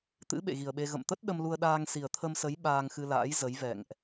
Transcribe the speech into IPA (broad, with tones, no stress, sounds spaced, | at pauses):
t̪ ɨ̰˧˥ ɓ ḛ˧˨ ɣ i˨˩ ə̯ ɓ e˧ ɣ ə̰˧˨ m t̪ ə˦˥ t̚ ɗ ə˧ m l u˧ ə̯ ɗ aː˧ ŋ s i˨˩ ə̯ t̪ʰ ə˧ m s ə˨˦ j ɓ aː˧ ŋ x ɨ˧ l a̰ː˧˥ j z ə˨˦ j v ɛ̰˧˨ ŋ ʔ